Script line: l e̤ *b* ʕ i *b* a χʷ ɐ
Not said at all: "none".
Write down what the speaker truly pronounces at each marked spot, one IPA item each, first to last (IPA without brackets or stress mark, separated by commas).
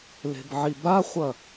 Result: b, b